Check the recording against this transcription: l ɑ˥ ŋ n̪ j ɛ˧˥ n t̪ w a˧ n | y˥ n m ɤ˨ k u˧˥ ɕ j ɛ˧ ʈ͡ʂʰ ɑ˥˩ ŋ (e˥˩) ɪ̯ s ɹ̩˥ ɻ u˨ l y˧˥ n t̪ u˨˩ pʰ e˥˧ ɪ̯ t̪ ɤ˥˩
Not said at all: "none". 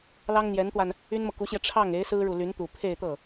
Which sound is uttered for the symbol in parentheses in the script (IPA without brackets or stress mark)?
e˧˥